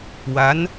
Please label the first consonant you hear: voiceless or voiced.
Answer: voiced